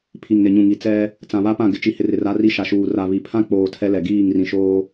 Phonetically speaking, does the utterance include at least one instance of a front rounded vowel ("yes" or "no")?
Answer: no